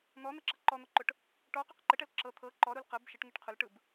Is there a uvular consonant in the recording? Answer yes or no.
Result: yes